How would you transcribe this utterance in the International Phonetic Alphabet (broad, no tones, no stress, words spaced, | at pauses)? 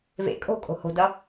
vḛ kʼo̤kʼo̤ ho̤dʌ